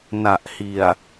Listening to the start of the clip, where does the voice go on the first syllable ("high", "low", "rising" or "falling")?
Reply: low